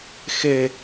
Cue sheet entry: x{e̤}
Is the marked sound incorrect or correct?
incorrect